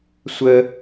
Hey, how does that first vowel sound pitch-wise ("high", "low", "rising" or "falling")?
high